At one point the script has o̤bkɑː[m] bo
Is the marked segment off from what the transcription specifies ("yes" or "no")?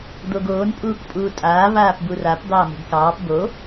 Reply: yes